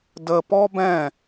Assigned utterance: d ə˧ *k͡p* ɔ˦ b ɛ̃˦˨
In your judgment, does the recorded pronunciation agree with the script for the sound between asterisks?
no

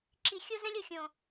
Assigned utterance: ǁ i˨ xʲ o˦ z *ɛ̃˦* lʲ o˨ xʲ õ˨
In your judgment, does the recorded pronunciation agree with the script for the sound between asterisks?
yes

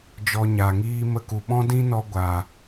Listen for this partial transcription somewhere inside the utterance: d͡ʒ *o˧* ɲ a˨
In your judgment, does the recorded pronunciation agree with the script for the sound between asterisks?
no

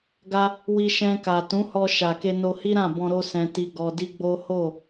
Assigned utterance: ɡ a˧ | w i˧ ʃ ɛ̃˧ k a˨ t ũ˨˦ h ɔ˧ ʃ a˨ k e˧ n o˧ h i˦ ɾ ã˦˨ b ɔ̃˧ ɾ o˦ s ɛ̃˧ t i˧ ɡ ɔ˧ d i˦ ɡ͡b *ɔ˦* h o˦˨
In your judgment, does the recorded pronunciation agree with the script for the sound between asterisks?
no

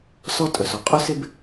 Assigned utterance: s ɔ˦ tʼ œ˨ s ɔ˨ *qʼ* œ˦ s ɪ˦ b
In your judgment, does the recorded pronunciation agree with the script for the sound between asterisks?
yes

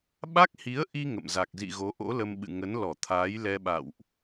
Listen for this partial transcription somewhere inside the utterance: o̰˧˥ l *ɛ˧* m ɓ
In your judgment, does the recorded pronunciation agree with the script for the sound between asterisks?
no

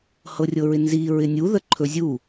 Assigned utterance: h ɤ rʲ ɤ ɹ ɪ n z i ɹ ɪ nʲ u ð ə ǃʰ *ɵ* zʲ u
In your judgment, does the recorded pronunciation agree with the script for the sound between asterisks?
yes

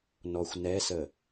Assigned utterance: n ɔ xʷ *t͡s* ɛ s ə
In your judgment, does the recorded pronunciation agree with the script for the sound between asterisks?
no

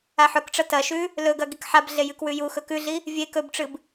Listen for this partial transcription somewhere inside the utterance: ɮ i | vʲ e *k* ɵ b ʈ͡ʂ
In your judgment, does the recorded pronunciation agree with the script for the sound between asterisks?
yes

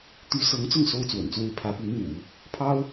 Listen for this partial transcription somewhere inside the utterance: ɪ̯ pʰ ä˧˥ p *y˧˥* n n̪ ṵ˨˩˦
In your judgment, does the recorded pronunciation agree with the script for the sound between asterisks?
yes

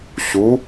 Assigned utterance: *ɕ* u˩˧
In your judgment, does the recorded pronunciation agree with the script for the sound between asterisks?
yes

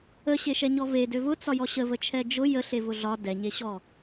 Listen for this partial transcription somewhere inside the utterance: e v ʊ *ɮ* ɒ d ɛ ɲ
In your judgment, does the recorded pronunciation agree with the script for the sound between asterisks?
yes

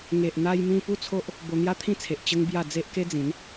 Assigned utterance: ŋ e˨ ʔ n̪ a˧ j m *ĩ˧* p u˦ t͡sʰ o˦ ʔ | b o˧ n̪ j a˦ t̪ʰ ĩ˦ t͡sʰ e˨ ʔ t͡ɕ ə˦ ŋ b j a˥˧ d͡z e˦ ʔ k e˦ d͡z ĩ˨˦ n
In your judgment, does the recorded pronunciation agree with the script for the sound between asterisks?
yes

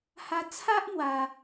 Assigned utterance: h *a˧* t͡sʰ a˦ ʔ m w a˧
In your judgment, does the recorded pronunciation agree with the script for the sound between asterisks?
yes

